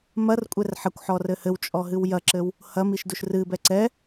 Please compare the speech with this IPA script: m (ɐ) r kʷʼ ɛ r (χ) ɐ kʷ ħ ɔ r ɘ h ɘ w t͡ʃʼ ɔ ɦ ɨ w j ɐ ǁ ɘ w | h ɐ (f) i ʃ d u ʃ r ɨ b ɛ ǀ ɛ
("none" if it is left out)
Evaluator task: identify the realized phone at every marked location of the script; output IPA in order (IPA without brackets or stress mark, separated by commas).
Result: ɐ, ħ, m